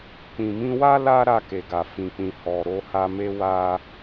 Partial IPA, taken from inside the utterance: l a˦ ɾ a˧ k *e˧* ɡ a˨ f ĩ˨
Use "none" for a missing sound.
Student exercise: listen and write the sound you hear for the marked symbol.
e˨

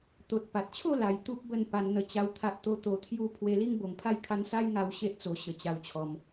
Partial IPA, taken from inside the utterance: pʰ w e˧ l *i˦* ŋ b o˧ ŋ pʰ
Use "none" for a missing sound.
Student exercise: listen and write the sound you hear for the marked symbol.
i˦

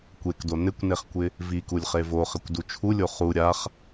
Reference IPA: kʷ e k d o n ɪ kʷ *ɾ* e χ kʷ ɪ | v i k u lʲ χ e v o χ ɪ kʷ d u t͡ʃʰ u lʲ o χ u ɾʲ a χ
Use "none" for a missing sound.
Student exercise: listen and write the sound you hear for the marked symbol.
n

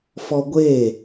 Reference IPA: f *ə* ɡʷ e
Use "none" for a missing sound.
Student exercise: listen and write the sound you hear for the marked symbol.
ɔ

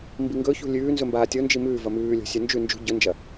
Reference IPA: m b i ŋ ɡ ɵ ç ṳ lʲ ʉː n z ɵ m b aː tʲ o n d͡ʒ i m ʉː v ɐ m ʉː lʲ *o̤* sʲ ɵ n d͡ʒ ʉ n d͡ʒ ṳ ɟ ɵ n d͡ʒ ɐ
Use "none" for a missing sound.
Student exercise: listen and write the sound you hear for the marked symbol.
o̤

